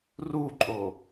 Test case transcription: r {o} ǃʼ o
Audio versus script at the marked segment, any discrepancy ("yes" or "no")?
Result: yes